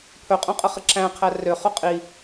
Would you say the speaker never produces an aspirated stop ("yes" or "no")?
no